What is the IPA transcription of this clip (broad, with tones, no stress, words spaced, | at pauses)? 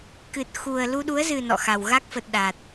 kɨ˨˩t̚ xu˨˩ə̯ lu˧ɗu˨˦ə̯zɨ˨˩ nɔ̰˧˨xa˨˩w ɣa˦˥k̚fə˨˩t̚ ɗa˨˩t̚